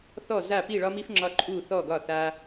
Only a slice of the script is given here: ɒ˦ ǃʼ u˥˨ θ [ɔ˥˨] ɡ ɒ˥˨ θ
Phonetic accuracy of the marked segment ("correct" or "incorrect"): correct